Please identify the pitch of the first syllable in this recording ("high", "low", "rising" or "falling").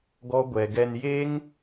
high